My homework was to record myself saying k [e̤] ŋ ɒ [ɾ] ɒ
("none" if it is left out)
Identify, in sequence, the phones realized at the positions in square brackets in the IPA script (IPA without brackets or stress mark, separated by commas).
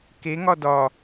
e, d